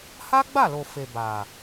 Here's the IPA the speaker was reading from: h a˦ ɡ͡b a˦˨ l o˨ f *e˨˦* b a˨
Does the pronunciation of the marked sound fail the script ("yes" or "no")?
yes